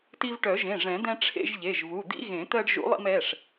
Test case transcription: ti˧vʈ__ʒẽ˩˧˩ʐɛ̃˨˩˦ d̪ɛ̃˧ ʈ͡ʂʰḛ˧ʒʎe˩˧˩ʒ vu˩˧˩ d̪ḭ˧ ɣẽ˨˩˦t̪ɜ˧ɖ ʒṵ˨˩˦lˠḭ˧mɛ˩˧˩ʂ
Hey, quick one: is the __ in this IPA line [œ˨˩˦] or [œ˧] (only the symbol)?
œ˨˩˦